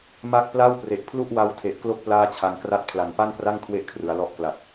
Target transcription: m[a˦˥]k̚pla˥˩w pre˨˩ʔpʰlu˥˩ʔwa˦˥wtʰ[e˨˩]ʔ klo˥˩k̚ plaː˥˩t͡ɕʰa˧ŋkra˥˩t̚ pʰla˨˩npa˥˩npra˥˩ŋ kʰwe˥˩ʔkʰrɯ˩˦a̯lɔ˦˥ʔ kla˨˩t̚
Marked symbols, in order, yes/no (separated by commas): yes, yes